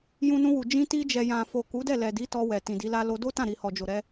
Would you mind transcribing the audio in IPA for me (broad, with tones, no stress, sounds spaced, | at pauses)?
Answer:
j ũ˧ n ũ˧ w u˨ d͡ʒ ĩ˧ t i˧ d͡ʒ ɛ˨ j ã˨ f o˨ k u˨˦ d ɛ˦˨ l ɛ˨ d i˨˦ t ɔ˧ w ɛ˨ t ĩ˨ d i˨˦ l a˦ l o˧ d o˦ t ã˦˨ ɾ i˨ h ɔ˨ d͡ʒ o˨ ɾ ɛ˧